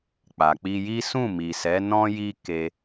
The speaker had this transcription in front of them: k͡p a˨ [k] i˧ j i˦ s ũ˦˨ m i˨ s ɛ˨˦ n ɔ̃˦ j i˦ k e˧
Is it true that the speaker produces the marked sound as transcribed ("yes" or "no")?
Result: no